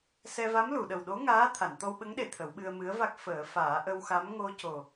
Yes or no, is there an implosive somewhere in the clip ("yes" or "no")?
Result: yes